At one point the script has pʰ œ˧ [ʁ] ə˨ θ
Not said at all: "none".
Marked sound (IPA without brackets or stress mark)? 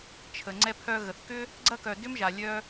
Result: ɣ